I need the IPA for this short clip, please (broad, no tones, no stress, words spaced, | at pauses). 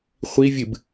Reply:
χʷi vʲɨb